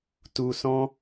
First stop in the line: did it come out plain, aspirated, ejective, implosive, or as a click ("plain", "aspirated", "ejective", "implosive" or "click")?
plain